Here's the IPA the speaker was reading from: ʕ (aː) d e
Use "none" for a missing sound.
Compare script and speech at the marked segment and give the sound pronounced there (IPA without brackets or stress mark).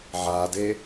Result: aː